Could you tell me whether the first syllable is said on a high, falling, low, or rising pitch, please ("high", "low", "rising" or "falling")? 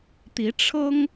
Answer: rising